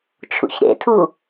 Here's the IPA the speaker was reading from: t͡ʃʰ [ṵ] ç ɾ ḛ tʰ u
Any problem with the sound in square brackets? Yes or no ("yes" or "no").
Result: no